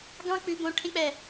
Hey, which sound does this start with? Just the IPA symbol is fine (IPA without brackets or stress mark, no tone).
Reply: ɡ